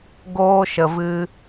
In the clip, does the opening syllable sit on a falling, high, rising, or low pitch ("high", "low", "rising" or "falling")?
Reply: high